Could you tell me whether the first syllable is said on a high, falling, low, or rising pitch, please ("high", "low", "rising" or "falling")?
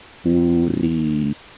low